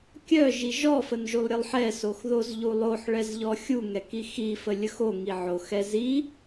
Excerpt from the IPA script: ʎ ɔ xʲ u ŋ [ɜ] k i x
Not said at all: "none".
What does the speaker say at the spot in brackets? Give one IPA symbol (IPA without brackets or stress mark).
ɛ